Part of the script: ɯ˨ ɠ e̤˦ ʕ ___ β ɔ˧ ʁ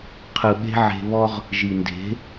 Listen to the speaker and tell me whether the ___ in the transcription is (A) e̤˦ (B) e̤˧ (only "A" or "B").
B